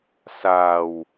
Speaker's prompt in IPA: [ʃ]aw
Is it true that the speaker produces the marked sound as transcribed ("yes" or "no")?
no